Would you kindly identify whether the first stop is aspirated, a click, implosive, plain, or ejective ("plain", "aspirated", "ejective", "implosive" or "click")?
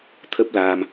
aspirated